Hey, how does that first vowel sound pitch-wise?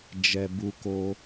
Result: low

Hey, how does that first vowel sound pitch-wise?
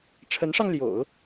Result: rising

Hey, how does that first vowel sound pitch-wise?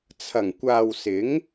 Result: low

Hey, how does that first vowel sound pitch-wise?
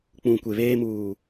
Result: low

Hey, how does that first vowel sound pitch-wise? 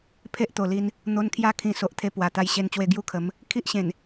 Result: high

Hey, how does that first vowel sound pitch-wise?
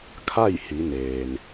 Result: falling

